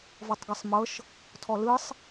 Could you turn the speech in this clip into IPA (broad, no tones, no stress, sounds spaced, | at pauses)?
v ɔ tˤ ɡ ɤ sˤ m ɤ ʃ | tʰ ɔ l ɯ sˤ